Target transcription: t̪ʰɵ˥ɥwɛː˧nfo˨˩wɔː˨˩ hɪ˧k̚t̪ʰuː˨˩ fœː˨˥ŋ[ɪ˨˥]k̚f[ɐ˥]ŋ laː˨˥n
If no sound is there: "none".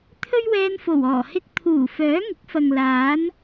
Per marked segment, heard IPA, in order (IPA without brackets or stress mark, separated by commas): ɪ˨˥, ɐ˨